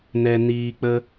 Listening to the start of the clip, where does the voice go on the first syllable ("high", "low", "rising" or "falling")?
low